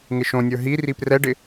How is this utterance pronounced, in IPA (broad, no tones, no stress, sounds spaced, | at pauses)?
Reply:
ŋ ɪ ʃ õ nʲ ə˞ ɦ i r i p r ɛ ɖ ɪ